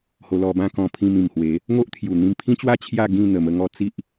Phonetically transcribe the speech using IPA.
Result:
h o˧ l ɔ˧ b ã˥˧ k ɔ̃˧ pʰ ĩ˧ m ĩ˨˩ m h w e˨˦ | ŋ o˦ ʔ t̪ʰ j u˨˩ n̪ ĩ˧ m pʰ ĩ˦ t͡ɕ w a˥˧ t͡ɕʰ j a˥˧ ɡ ĩ˥˧ n̪ ə˨˩ m ə˧ ŋ ɔ˧ t͡s i˦ ʔ

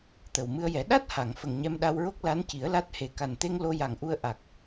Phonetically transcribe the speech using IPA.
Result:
t̪ ə˨˩ w m ɨ˧ ə̯ j ɛ˨˩˦ ɗ a˦˥ t̚ h a˨˩˨ ŋ f ə˨˩ ŋ ɲ ɛ˧ m ɗ a˧ w ɹ o˦˥ k̚ l a˧˥ n c i˨˩˦ ə̯ l a˦˥ t̚ h e˨˩˦ k a˨˩ n t̪ e˧ ŋ l o˧ j a˨˩ ŋ ʔ u˧ ə̯ ʔ a˨˩ k̚

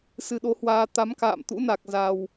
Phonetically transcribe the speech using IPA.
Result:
s ɨ˧ ɗ o˨˦ h w aː˧ t̪ a˨˦ m k a̰ː˧˨ m t̪ ṵ˧˥ n a˨˩ k̚ z a˨˩ w

